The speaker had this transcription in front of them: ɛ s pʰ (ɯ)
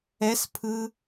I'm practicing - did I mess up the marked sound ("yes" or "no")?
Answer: no